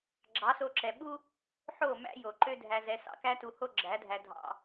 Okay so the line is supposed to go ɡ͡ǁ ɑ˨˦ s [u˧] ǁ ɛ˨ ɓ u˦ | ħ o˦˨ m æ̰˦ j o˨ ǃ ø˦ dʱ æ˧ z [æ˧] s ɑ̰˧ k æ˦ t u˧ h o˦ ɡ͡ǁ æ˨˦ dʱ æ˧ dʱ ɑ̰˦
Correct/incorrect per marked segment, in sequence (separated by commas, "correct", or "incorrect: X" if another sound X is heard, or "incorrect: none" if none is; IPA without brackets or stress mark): incorrect: o˧, incorrect: ɛ˧